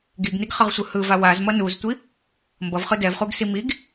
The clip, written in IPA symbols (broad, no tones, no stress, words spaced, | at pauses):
ɡiɡniɡχʌʁsʷɯ hɯva wazmʌ nuztʷi | mbʌvχɯ dɛvχuɡsi miɡ